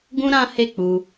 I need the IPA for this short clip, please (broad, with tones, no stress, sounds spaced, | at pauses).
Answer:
ɡ ũ˦ ɾ ã˦ h e˦˨ k͡p u˧